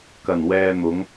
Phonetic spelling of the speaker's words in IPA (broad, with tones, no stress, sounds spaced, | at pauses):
k ɐ˨˩ n w ɛː˨ n̪ ʊ˨˧ ŋ